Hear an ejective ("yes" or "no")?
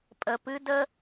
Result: yes